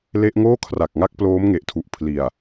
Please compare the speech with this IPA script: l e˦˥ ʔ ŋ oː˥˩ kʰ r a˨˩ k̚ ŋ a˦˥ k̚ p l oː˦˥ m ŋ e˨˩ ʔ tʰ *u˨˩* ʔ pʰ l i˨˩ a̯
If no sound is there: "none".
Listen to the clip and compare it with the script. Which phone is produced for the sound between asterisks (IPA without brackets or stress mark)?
u˨˩